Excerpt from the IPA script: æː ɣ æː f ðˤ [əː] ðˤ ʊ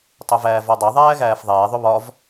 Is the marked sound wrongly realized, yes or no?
yes